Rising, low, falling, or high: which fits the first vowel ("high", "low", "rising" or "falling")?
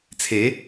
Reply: rising